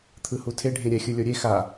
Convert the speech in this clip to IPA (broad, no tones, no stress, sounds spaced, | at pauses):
t̪ʰ ɯ h u tʰ e ɖʱ ẽ ɾʲ ɛ xʲ ɯ lʲ o ɾʲ e x a